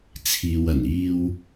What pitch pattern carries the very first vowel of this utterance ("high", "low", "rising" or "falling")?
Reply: low